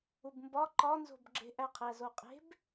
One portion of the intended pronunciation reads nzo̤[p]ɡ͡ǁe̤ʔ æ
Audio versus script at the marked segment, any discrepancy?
yes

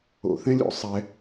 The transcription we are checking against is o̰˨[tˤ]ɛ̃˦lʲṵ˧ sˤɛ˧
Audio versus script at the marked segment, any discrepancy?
yes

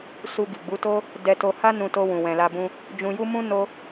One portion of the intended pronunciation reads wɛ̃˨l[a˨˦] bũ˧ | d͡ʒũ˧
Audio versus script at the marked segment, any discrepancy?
yes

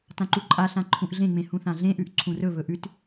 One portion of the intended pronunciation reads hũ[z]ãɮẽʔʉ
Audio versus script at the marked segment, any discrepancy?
yes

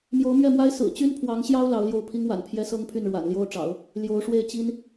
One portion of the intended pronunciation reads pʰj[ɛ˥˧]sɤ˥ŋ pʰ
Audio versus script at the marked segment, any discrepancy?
yes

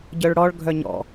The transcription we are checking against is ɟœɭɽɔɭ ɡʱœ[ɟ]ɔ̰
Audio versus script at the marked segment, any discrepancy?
yes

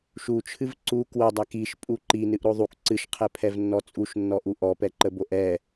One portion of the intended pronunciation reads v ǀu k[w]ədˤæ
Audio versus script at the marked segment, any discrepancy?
no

